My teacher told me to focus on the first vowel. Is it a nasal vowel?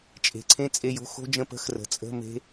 no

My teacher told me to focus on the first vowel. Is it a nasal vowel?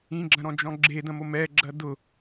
yes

